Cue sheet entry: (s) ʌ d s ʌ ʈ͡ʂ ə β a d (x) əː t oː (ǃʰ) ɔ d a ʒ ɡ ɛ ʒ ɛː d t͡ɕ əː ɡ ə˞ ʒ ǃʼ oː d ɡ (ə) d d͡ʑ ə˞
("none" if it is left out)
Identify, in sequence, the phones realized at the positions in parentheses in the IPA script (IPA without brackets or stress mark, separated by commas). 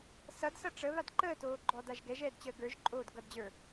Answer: s, ǃ, ɡ͡ǃ, ʌ